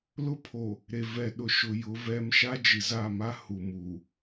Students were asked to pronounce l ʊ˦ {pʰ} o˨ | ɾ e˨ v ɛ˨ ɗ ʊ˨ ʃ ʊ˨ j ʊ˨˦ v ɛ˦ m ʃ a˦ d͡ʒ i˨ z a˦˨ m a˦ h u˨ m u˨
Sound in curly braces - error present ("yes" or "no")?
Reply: no